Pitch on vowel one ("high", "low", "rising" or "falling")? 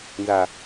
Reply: low